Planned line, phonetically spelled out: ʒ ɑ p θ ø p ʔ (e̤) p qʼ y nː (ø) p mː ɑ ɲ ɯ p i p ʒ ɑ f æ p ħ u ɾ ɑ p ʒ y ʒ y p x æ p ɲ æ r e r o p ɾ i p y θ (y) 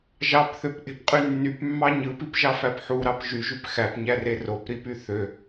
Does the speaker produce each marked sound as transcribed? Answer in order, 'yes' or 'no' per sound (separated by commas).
yes, no, no